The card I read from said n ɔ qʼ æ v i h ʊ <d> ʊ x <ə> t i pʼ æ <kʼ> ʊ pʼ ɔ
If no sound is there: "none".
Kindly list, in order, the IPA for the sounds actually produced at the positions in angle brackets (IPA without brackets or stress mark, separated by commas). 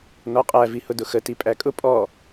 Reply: d, ə, kʼ